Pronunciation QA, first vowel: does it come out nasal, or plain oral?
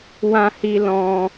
nasal